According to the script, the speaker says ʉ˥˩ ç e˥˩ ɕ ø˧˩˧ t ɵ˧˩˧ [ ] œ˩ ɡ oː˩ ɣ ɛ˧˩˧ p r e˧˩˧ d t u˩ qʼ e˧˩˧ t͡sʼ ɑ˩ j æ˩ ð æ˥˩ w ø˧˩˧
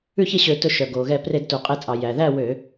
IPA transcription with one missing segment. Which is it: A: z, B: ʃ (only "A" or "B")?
B